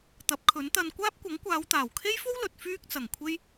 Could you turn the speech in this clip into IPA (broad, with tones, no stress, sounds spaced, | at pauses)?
t̪ ɐ˨˥ p̚ kʰ ɵ˨˥ n t̪ ɐ˧ n kʷ aː˥ p̚ kʷ ɐ˨˥ ŋ kʷ aː˨˧ w t̪ aː˨˩ w kʰ e˥ j f o˥ w l ɵ˨ t̚ f yː˥ k̚ t͡s ɐ˨˩ ŋ kʷʰ e˥ j